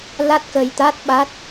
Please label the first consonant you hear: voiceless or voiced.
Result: voiced